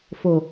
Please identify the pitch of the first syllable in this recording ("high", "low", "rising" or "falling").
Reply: low